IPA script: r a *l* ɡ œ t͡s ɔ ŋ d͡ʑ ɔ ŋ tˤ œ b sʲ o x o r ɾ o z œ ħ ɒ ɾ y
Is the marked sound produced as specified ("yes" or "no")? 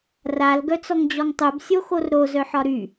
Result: yes